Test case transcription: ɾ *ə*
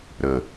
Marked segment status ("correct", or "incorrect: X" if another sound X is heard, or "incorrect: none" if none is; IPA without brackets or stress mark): correct